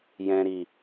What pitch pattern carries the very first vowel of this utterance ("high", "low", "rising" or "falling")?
low